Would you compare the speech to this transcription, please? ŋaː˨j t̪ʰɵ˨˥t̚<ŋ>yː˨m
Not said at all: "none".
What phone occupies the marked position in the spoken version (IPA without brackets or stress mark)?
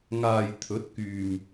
k